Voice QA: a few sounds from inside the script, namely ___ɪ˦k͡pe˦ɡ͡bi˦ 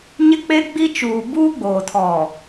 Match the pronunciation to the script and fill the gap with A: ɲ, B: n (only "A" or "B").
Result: A